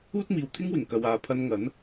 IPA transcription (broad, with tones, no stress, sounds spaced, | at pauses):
uː˥ t̚ m iː˨ w t̪ʰ ɪ˥ ŋ w ɪ˨˩ ŋ k ɐ˨ w aː˨ pʰ ɐ˧ n ŋ ɐ˨˥ n